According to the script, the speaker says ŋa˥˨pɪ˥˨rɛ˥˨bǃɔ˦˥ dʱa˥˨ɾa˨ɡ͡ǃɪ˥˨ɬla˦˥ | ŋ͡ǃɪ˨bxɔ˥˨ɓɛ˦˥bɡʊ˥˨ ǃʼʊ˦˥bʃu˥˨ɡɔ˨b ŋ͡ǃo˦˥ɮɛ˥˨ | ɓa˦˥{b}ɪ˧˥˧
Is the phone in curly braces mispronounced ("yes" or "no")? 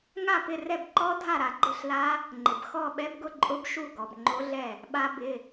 no